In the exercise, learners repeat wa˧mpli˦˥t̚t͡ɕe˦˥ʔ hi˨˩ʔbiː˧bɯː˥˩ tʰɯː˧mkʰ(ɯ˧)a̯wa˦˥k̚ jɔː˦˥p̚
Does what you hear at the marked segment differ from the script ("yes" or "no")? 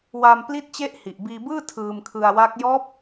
no